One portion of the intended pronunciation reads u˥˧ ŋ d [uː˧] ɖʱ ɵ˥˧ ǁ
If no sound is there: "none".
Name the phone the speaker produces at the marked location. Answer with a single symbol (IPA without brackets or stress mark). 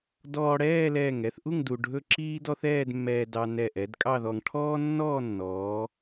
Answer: u˧